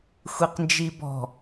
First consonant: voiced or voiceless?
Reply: voiceless